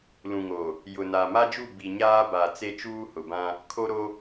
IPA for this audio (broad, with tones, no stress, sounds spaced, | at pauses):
l ũ˨ ŋ o˨ | j ʊ˨ n a˨ m a˦ d͡ʒ u˦˨ b i˨ ɲ aː˦ b a˨ t͡s e˦ t͡ʃ uː˦ h ʊ˨ b ã˦ | kʰ o˦ ɾ o˦